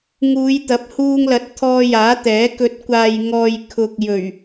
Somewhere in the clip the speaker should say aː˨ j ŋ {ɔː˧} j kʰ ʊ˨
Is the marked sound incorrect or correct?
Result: incorrect